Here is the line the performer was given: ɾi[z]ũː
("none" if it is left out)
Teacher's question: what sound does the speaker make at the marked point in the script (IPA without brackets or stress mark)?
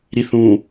θ